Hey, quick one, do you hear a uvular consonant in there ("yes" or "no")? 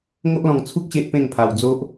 no